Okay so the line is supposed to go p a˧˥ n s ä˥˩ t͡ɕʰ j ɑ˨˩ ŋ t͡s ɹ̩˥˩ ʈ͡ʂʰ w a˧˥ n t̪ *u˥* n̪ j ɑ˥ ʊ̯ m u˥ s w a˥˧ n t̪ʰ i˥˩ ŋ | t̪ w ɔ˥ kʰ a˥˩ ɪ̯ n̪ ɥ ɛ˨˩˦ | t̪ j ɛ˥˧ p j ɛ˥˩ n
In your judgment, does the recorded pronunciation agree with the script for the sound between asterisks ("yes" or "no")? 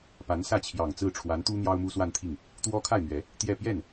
yes